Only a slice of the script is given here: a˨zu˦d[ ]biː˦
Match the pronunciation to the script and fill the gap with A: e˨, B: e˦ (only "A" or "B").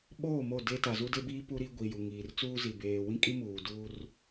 B